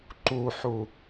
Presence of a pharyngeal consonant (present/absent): present